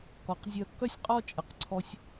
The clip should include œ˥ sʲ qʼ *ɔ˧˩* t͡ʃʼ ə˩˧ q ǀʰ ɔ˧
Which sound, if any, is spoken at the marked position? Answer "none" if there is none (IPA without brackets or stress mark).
ɔ˥˧